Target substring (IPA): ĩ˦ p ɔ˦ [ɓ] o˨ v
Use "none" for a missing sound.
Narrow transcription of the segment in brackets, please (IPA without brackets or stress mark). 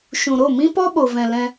ɓ